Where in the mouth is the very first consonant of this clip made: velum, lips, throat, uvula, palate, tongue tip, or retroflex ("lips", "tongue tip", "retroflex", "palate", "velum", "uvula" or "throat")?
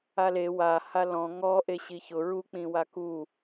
tongue tip